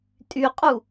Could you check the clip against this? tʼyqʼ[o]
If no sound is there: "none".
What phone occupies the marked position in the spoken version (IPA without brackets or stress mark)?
u